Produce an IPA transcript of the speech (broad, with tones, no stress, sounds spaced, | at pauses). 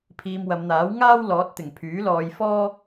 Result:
pʰ iː˧ m w ɐ˨˧ m n̪ aː˨˥ w ŋ aː˥ w l ɔː˨˥ t̚ t̪ ɪ˨˩ ŋ pʰ yː˨˥ l ɔː˧ j f ɔː˥